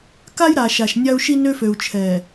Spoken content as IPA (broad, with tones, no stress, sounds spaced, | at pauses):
k a˦ j ɾ a˨ ʃ a˨ ʃ nʲ a˦ u̯ ʃ i˦ n ø˦ f ø˨ u̯ t͡ʃʰ ɛ˨